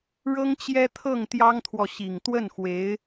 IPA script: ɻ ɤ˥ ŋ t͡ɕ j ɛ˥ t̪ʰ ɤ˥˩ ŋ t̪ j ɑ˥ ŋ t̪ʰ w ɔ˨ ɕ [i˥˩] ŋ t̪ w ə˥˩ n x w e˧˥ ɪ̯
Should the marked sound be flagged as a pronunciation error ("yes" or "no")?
yes